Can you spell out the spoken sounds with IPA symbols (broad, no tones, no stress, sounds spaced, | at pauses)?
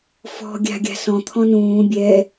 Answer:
f ɔ̤ ɡʲ a̤ ɡʲ a̤ s ɔ̃ t̪ʰ ɔ̃ n ũː bʲ ɛ